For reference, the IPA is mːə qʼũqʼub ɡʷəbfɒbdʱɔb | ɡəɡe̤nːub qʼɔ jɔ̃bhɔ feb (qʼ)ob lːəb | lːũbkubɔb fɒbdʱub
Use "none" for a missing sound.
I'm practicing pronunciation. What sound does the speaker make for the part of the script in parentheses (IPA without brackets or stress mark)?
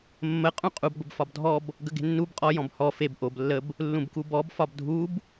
ʔ